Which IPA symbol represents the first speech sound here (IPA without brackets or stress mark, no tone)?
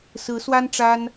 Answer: s